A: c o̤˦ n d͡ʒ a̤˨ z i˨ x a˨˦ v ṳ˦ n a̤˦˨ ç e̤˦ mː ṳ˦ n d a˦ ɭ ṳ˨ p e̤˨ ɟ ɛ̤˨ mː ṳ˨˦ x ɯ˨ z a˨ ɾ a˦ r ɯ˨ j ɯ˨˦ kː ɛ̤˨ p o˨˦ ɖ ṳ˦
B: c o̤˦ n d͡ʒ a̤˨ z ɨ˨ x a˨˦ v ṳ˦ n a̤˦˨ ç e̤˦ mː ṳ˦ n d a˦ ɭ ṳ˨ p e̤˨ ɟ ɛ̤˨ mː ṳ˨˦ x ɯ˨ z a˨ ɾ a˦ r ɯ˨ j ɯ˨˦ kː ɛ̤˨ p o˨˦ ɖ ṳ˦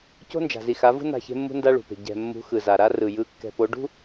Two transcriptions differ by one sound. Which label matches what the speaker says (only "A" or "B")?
A